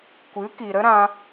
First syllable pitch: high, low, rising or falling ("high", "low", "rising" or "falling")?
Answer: rising